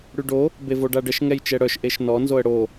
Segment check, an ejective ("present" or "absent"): absent